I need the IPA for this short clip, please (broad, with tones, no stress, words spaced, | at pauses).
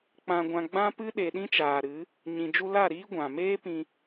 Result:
k͡pã˨ɡʷã˨ ɡ͡bã˦pɨ˦ ɗe˨ɗĩ˦t͡ʃaː˨ɾɨ˨˦ | ɲĩ˨d͡ʒu˧la˦˨ɾiː˦ ɡʷã˨ meː˦pĩ˧